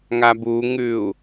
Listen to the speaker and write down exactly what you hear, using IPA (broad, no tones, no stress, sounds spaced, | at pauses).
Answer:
ŋ a b u ŋ ʉ u̯